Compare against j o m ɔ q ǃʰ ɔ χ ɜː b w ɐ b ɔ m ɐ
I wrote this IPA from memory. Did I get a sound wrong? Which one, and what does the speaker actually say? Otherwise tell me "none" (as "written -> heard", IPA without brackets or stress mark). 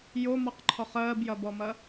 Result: w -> j